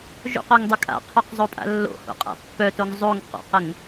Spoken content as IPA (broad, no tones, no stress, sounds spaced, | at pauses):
ʒ o̰ q œ ŋ dˤ ə kʼ a̰ qʰ œ q zˤ o pʼ a̰ lː o̰ h o̰ qʼ a̰ pː œ t o ŋ zˤ o ŋ q o̰ q ə ŋ